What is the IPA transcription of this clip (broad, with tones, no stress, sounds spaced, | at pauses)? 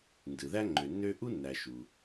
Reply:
n d ɯ˩ ð æ˥ ŋ͡ǃ ø˩ nː ø˥ ʔ u˥ nː æ˩ ʃ u˩